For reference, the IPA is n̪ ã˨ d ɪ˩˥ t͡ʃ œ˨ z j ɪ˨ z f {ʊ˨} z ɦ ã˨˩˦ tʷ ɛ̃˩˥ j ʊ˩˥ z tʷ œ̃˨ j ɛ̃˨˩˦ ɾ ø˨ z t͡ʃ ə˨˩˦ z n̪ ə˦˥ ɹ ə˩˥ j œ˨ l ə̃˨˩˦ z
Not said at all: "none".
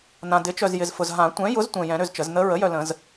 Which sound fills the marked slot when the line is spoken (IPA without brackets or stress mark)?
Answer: ʊ˨